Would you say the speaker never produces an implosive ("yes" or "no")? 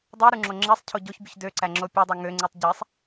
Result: yes